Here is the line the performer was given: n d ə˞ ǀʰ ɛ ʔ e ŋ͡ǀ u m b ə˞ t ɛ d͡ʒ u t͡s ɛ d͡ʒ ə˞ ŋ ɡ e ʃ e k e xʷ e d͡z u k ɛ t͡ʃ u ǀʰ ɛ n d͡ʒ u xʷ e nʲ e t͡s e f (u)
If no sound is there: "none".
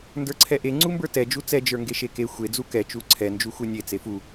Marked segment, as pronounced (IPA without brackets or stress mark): u